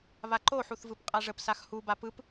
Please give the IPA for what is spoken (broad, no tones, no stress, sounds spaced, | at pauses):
β a ǃ o ħ u θ v ɯ p qʼ a ʐ ə p s a x h u b a p ɯ p